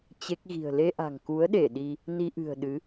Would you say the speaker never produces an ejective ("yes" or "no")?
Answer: yes